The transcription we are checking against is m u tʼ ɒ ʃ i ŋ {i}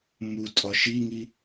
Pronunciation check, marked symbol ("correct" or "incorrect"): correct